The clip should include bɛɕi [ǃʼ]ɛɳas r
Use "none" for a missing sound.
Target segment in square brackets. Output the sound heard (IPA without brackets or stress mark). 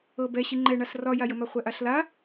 ŋ͡ǃ